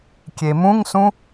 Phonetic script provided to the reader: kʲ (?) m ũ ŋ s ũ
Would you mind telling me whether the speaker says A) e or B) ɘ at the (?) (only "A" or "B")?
A